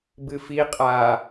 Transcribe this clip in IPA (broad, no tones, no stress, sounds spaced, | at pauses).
b ɨ f i qʼ a